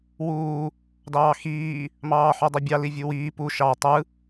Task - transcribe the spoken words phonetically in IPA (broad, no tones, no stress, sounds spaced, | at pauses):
w uː | d ɑː x iː | m ɑː ħ y dˤ u bʲ ɑ l i vʲ u w iː p u ʃ ɑ tˤ ɯ